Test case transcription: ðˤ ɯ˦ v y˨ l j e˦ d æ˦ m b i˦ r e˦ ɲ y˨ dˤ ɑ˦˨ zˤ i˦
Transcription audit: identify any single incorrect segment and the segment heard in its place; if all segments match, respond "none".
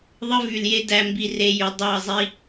ɲ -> j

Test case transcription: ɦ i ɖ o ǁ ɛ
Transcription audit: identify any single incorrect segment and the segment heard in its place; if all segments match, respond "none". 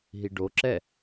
none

